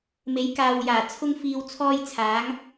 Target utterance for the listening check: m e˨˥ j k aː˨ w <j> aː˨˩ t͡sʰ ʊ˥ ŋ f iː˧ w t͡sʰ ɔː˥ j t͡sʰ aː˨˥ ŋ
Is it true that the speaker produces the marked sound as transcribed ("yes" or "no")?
yes